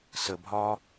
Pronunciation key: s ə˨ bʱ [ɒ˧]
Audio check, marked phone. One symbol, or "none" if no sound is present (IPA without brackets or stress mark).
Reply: ɒ˧